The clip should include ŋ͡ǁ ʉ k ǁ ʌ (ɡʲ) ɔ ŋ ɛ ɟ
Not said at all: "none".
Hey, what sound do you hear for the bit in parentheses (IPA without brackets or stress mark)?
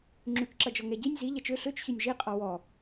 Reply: d͡ʒ